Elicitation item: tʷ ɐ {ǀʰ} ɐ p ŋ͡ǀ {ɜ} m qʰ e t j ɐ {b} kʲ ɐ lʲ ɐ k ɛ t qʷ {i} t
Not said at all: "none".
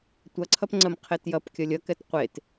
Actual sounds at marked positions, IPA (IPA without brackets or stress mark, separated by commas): ǀʰ, ɜ, p, e